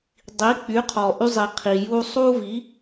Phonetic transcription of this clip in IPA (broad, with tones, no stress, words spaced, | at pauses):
dˤi˩˥k͡py˩˥qʰɔ˩ ʔy˧zˤi˩ qʰi˩ ju˧sˤu˥vi˩˥